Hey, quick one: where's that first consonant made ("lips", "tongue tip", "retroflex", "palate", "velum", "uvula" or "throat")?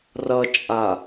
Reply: tongue tip